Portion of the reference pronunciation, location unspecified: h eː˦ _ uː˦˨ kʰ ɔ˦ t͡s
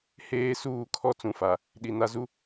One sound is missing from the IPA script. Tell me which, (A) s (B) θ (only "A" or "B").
A